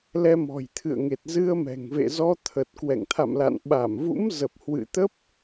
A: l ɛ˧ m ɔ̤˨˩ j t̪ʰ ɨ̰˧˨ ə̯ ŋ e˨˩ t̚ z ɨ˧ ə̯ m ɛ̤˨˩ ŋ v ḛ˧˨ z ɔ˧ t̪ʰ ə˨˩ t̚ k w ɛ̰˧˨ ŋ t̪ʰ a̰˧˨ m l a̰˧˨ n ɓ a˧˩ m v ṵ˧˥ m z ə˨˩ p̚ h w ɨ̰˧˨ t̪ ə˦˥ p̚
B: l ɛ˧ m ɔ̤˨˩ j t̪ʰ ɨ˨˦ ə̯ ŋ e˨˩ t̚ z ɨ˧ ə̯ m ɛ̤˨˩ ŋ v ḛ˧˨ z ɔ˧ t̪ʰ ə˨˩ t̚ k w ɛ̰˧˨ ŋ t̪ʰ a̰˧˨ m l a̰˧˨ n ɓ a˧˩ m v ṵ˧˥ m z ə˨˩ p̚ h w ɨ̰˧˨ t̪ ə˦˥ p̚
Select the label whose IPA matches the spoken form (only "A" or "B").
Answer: A